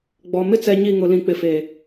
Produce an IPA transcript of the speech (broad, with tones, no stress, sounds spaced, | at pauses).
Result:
ɡ͡b ɔ˨ m ɪ˦ t͡s ɛ˨ ɲ i˦˨ ŋ ʊ˨ l ĩ˨ k͡p ɪ˨ f e˨